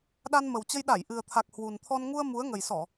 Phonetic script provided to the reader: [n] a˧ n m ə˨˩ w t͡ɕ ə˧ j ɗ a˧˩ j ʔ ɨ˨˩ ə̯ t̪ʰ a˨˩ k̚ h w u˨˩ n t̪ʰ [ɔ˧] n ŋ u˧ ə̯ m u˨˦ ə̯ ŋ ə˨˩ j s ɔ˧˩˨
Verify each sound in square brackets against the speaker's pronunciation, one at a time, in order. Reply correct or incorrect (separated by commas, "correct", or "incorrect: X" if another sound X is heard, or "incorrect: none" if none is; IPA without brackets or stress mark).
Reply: incorrect: ɗ, correct